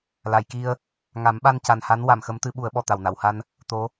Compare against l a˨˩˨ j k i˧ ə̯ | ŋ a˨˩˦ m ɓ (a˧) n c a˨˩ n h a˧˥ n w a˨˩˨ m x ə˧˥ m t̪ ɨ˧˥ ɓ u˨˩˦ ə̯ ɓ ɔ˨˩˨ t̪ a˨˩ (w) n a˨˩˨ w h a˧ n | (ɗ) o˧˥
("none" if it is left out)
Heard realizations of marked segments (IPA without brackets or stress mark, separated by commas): a˧, w, t̪